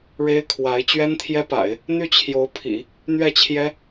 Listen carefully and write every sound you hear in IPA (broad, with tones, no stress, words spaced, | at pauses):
ɻe˥ɪ̯kʰwa˧˥ɪ̯ t͡ɕɥɛ˥nt̪ʰjɛ˥pa̰˨˩˦ɪ̯ | n̪y˥˩t͡ɕʰjo˧˥ʊ̯pʰḭ˨˩˦ | n̪ɥɛ˥˩t͡ɕʰjɛ˥